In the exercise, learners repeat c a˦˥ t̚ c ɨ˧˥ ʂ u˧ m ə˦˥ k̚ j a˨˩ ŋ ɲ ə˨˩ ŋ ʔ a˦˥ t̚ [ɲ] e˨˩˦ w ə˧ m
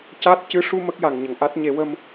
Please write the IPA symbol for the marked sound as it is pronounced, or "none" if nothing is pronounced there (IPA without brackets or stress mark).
ɲ